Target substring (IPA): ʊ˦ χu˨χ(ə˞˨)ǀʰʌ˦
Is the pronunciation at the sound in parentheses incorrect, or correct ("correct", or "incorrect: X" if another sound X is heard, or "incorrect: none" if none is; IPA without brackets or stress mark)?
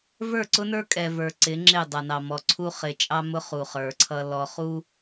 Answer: correct